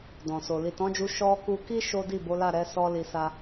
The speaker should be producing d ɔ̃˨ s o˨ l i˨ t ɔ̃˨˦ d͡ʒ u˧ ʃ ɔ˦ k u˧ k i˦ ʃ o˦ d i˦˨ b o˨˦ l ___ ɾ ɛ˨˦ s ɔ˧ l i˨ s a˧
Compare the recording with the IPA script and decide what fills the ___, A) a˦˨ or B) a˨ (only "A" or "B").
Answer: A